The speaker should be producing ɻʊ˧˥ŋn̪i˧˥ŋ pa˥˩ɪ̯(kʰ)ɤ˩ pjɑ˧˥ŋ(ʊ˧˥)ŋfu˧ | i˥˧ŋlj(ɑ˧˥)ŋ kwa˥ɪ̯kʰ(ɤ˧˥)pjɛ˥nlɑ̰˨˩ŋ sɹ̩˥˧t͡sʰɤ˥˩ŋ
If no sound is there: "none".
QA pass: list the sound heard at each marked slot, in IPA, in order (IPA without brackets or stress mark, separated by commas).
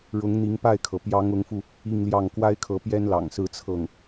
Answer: kʰ, ʊ˧˥, ɑ˥˩, ɤ˧˥